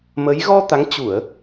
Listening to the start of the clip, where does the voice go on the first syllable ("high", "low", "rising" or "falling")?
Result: rising